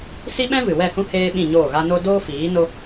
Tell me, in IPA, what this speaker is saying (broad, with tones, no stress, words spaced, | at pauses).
si˦ɓɛ̃˦vɨ˨ wɛ˦˨hũ˦ heː˦ɓĩ˦˨ɲoː˦˨ɣa˦ no˦ doː˦fiː˨˦ no˦